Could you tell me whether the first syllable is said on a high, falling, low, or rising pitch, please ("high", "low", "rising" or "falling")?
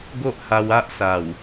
high